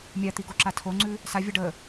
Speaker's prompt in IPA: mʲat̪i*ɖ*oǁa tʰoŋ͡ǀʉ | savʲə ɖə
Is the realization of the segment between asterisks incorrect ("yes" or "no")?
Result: yes